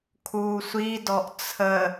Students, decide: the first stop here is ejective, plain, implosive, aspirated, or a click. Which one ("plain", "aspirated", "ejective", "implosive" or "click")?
aspirated